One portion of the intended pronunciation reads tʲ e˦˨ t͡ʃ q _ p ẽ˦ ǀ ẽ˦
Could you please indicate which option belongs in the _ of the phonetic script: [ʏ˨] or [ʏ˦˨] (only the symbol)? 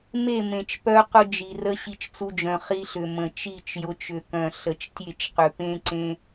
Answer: ʏ˨